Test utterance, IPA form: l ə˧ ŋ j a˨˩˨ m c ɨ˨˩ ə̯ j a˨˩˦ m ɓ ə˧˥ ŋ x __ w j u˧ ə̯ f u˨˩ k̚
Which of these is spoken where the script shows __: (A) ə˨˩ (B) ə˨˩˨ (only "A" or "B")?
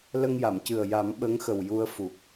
A